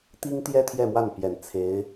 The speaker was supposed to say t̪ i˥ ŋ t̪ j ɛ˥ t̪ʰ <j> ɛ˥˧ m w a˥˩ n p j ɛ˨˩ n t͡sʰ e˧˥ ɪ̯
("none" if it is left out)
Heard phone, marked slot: j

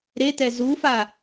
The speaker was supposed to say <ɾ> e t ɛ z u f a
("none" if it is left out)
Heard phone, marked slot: ɾ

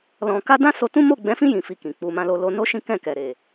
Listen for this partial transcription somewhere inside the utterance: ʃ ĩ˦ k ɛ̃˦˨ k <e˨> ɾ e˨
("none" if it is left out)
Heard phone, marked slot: ɛ˨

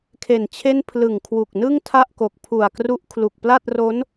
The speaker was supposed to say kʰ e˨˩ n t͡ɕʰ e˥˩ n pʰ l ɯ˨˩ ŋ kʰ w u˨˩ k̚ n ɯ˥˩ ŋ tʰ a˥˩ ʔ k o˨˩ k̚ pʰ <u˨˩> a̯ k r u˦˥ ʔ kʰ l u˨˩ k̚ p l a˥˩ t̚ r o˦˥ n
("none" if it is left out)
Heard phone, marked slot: u˨˩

